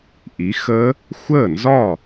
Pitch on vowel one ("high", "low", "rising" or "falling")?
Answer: rising